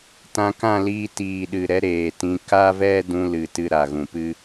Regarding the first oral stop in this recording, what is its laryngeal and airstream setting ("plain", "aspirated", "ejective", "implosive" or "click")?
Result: plain